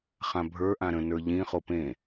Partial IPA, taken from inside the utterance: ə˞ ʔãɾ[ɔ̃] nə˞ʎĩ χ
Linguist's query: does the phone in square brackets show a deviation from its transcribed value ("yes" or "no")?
yes